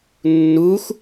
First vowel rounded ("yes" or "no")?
yes